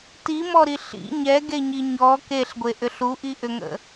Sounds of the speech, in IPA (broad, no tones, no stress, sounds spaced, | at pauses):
t i m ɔ ɾ i ɬ ḭ ɲ ɛ ɡ e ɲ i ɲ ɔ k e ɬ ɡʷ e ʔ ʏ ɬ u ʔ i ʔ ʏ ŋ ə̰